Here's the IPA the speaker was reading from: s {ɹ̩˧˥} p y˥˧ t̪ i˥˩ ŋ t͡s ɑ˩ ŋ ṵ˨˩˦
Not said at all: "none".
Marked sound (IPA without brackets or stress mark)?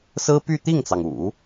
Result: ɹ̩˥